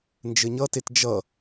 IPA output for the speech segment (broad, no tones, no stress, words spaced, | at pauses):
nd͡ʒɘɲʌtet d͡ʒʌ